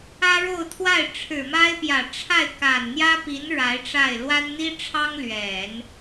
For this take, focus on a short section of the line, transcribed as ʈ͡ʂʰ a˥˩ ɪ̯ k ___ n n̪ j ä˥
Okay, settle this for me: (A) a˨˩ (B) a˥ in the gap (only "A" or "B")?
A